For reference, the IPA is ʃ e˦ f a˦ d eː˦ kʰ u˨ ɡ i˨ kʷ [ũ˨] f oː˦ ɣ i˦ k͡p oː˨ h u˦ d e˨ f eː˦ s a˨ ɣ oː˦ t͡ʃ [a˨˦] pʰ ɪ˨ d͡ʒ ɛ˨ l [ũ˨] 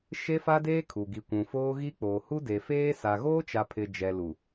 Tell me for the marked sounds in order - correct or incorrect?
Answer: correct, incorrect, incorrect

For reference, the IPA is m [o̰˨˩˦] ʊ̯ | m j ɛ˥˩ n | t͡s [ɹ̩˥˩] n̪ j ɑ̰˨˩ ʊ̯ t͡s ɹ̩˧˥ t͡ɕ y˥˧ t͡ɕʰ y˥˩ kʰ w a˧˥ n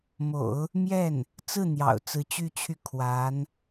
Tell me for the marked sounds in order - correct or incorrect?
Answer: correct, correct

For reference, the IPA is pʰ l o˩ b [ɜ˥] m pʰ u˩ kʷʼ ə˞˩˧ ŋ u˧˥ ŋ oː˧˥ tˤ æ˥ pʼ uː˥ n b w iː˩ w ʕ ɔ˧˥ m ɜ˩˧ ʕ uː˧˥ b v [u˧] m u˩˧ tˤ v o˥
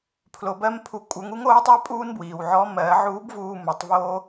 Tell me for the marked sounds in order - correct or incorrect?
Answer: incorrect, incorrect

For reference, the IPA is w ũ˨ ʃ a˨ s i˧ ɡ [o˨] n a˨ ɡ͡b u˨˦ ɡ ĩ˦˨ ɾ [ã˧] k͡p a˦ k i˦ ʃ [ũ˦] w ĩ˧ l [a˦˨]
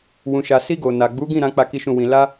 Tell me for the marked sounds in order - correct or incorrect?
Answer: correct, incorrect, incorrect, incorrect

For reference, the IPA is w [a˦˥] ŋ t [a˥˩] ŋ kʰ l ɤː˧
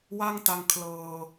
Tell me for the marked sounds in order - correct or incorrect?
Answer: incorrect, incorrect

